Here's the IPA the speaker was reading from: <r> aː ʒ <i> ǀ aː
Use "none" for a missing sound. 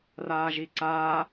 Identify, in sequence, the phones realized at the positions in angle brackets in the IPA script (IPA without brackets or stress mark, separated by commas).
r, i